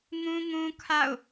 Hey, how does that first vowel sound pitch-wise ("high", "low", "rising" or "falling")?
high